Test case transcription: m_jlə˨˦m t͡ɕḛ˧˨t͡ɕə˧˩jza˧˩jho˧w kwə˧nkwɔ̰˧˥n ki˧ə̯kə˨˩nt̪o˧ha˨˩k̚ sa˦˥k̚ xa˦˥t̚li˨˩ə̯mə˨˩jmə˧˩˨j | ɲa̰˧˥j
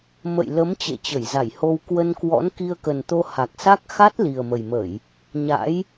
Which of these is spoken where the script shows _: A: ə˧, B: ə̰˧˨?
B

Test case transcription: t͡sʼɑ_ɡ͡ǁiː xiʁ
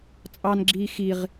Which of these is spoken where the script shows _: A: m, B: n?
B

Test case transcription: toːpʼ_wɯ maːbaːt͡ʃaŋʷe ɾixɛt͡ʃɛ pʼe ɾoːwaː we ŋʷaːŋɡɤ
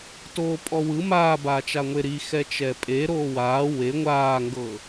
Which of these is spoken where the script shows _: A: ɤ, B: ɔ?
B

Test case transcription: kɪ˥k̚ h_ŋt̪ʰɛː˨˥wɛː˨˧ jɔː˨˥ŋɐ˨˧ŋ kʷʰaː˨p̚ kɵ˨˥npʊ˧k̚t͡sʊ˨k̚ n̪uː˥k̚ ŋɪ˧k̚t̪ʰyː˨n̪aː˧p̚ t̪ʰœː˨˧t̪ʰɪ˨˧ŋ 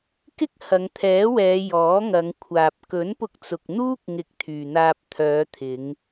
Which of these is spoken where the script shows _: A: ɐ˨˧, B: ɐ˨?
A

